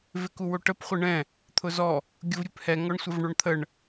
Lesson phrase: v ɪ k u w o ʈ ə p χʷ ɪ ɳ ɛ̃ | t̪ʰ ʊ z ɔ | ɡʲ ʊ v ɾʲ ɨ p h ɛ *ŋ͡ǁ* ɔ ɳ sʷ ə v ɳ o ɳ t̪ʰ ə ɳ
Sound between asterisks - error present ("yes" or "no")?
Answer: yes